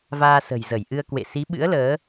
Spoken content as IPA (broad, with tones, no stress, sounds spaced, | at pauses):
v aː˧ s ə̤˨˩ j z ə˧˩ j ʔ ɨ˧ ə̯ k w ḛ˧˨ s i˨˦ ɓ ɨ̰˧˥ ə̯ l əː˨˦